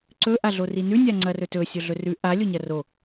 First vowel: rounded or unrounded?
rounded